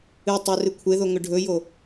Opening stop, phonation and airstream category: plain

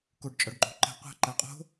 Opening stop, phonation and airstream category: plain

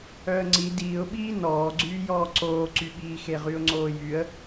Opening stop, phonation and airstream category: click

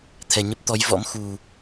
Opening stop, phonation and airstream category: aspirated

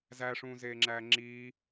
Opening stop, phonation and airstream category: click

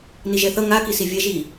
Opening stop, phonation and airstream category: plain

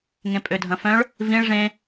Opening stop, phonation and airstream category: ejective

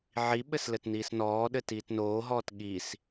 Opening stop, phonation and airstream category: implosive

